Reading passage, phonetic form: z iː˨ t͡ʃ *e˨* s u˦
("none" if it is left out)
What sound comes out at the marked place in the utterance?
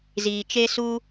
e˦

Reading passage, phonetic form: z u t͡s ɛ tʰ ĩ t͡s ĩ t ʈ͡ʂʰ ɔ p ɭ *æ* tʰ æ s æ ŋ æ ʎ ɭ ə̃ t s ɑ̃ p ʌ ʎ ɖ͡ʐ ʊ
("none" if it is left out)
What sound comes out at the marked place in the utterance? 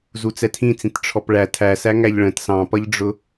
æ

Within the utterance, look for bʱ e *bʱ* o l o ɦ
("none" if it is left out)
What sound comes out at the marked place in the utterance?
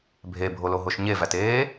bʱ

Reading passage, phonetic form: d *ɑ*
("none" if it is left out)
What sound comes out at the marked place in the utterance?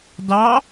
ɑ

